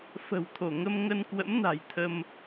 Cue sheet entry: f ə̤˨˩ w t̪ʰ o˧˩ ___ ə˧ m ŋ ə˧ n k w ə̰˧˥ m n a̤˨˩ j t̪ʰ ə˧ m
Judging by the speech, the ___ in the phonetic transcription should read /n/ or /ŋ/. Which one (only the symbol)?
ŋ